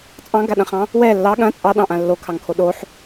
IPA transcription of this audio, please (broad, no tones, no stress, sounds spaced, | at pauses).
t͡sʼ ɑ̃ ɡ a ɗ ɐ̃ χ ɑ̃ | w ɛ lː ɑ ɠ ɐ̃ t͡sʼ ɑ ɗ ɑ̃ ʔ ã lː o kʰ ɑ ŋ kʰ o ɗ o ħ